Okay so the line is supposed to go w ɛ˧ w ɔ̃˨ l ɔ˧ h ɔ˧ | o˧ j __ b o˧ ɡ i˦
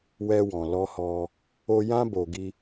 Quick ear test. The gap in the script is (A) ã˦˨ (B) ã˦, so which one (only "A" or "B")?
B